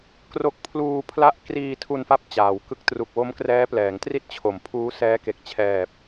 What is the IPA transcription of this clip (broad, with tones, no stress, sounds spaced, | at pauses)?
k r o˥˩ k̚ pʰ l uː˧ pʰ l a˥˩ ʔ k r iː˧ tʰ u˧ n f a˦˥ p̚ t͡ɕ aː˩˦ w k ɯ˦˥ k̚ t r u˨˩ k̚ w o˦˥ m k r ɛː˦˥ p l ɛː˩˦ ŋ t r i˥˩ t̚ t͡ɕʰ o˩˦ m pʰ uː˦˥ s ɛː˦˥ k e˨˩ k̚ t͡ɕʰ ɛː˨˩ p̚